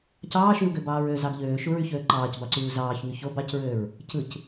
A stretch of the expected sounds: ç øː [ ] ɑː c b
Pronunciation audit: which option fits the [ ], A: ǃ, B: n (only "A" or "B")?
A